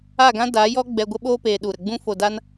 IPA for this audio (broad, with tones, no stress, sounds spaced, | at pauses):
a˦˨ ɡ ã˦ d a˨˦ j ɔ˦ ɡ͡b ɛ˧ ɡʷ ə˦ ɓ oː˦ p eː˨ ɗ u˨ ɾ ə˨ ɡ͡b ũ˦ f o˨ d a˧ n